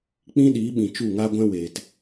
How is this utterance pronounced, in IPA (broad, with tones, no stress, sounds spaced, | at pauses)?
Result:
k͡p ĩ˦ ɗ iː˨˦ ɓ ĩ˨ t͡ʃ u˦˨ ŋ a˦ ɡʷ ɛ̃˦ w eː˨ t